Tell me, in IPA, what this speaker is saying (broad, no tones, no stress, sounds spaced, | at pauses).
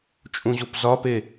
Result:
t͡ʃʼ ũ ʑ o p z ɒ p e